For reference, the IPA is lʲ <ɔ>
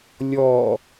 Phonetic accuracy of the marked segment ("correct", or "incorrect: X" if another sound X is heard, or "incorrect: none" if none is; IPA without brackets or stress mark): correct